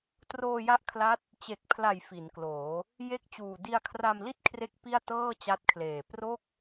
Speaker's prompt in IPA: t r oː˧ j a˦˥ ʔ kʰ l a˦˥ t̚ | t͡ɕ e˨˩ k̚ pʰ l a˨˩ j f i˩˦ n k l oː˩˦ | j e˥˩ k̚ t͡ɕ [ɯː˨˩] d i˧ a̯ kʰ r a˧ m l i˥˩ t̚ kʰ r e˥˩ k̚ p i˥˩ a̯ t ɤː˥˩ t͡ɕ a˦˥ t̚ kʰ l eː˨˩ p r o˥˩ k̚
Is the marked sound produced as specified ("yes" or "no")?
no